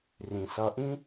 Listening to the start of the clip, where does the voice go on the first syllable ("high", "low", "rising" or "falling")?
low